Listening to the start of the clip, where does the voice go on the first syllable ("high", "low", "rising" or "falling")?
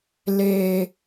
low